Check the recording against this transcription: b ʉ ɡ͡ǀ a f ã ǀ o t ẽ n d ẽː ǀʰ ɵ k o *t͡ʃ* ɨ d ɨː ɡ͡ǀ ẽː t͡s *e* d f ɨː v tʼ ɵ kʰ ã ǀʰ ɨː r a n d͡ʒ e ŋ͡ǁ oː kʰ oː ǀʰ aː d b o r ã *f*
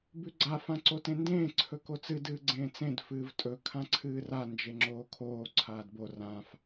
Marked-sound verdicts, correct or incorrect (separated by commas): incorrect, incorrect, correct